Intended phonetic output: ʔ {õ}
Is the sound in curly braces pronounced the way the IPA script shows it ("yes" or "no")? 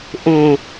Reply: yes